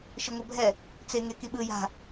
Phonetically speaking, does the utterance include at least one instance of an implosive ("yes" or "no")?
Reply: yes